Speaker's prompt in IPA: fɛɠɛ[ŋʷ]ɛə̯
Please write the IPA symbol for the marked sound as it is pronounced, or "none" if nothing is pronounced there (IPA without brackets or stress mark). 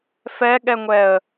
ŋʷ